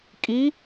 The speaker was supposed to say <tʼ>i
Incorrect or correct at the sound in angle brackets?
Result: incorrect: kʼ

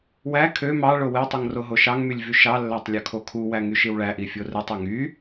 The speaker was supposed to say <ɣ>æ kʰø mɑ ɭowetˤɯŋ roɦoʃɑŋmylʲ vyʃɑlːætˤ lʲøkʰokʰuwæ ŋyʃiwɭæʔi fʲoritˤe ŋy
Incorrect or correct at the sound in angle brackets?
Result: incorrect: w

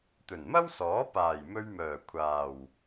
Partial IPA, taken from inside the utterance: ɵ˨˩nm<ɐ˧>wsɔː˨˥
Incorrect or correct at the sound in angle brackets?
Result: incorrect: ɐ˥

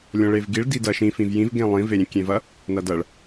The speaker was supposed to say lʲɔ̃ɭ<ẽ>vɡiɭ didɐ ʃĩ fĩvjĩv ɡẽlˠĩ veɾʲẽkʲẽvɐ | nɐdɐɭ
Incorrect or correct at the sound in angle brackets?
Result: incorrect: e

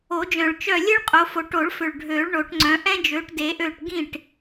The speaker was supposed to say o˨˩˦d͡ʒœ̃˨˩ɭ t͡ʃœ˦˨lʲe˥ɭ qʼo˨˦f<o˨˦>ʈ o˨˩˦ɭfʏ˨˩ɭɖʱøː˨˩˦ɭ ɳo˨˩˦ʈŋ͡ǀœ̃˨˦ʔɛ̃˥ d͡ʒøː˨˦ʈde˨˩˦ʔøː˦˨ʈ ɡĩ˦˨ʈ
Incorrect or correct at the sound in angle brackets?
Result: correct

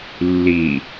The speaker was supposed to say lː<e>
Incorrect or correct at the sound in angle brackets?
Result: incorrect: i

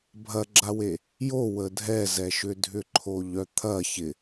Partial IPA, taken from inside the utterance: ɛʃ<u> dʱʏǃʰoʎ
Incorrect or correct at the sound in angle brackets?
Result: incorrect: ʏ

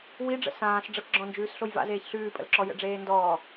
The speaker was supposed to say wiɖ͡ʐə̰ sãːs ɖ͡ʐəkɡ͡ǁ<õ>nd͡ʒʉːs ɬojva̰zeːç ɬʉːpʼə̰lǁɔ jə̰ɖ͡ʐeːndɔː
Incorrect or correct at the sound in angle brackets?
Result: incorrect: ɔ̃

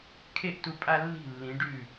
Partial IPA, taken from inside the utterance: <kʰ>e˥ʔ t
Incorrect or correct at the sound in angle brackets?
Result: correct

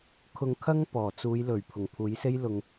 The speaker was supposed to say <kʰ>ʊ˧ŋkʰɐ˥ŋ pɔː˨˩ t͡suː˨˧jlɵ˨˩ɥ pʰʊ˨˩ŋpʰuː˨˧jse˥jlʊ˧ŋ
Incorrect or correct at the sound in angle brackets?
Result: correct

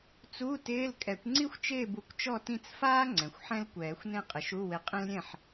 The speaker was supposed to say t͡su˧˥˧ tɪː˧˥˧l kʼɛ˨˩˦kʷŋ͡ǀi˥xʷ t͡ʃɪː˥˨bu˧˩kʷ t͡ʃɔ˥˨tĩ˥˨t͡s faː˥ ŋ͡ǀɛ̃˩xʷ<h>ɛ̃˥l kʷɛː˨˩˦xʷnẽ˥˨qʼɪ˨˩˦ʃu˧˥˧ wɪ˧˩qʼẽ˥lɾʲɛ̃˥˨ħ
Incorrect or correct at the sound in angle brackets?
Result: incorrect: ħ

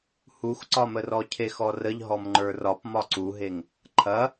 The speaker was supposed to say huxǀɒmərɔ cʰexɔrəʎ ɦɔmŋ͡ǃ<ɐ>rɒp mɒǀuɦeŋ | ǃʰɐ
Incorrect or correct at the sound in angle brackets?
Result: incorrect: ə˞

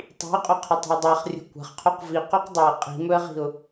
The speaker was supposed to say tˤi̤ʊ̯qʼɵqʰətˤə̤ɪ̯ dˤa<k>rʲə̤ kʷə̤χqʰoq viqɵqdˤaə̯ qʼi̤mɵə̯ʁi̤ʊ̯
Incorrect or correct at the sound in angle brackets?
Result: incorrect: χ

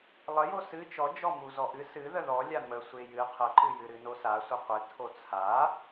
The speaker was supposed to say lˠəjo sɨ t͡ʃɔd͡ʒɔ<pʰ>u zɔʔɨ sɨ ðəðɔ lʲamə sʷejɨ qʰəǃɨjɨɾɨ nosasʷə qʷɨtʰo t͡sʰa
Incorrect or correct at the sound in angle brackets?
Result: incorrect: m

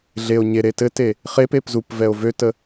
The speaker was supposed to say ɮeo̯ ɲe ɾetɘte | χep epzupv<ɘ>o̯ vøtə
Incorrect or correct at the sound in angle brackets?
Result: incorrect: ɛ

